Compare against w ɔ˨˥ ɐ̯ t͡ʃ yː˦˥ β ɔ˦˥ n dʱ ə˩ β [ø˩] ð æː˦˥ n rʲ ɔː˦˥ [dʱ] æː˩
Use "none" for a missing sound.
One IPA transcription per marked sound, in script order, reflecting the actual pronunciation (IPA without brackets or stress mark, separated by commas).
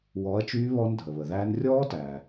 ə˩, t